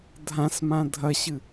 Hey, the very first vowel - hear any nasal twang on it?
yes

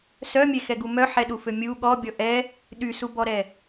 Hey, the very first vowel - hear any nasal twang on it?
no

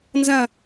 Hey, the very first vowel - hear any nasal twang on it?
yes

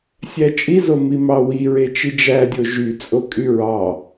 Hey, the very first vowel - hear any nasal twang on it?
no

